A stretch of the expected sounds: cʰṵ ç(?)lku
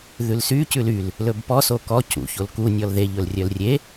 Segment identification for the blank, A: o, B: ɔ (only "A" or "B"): A